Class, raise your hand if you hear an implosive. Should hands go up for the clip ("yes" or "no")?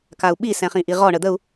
yes